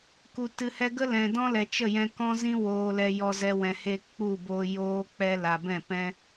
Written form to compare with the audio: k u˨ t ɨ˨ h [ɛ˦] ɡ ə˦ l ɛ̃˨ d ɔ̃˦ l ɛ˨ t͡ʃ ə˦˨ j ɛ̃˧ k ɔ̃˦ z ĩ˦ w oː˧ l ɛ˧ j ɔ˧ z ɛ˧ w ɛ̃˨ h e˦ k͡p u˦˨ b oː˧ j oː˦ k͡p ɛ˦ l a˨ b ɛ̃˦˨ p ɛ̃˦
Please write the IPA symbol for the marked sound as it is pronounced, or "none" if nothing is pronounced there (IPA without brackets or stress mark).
ɛ˧